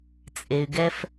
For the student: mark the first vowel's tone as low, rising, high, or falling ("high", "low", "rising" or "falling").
low